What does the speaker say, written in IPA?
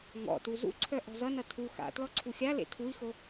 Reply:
ŋ ɔ̰ t u z ṵ ǀʰ œ ʔ ɔ̤ z ʌ n ʌ tʰ u x a̰ t l ɔ ǀʰ u xʲ a l ḛ tʰ u i̯ x o

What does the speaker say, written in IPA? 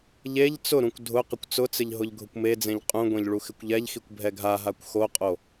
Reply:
ʎ e ʎ t͡s ʊ ɾ ũ kʷ dʱ ʊ q ɪ kʷ t͡s ʊ t͡s ɪ ʎ ɦ ʊ ʎ ɡʱ ʊ kʷ m e d͡z ẽ ʎ qʼ ũ ɡʷ ẽ ʎ ɭ u x ɪ kʷ ʎ ɛ ʎ x i kʷ bʱ ɛ ɡʱ a ɦ a kʷ x o qʼ o

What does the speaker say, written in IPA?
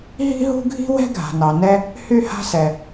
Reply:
ɦ i̤˥ ɦ ṳ˥ ɡʱ i̤˥ w ɛ̤˥ ɡʱ a̤˩ n ɑ˩ n ɛ˦ | h y˦ h a̤˦ s ɛ˨

